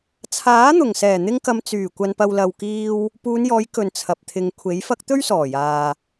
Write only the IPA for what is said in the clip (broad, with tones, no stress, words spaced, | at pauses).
t͡sʰaː˨˥n̪ʊ˨˩ŋ sɛː˨˩n̪ɪ˧ŋkɐ˨m t͡syː˨˩ kʷɐ˨npɐ˨w lɐ˨w kiː˥w | puː˨˧njɔː˨˧j kɵ˨˩n t͡sʰɐ˨p̚ t̪ʰɪ˨ŋkʷʰe˨˥jfɐ˥k̚ t̪ɵ˥ɥsɔː˨˩jaː˨